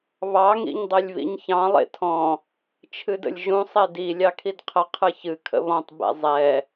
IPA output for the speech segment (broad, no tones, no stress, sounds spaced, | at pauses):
β ɑ ŋ ḭ ɲ dˤ e lʲ β ḭ ɲ ç ɑ̃ lˠ ḛ tʰ ɔ̃ | t͡ʃʰ ɨ d ə̰ lʲ ʒ ũ sˤ ɛ d i lʲ ɑ kʰ i d qʰ ə qʰ ɨ ç ɨ kʰ ə̰ β ɔ̃ tˤ b ɛ̰ zˤ ɛ